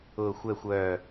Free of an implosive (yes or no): yes